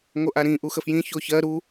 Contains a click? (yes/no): no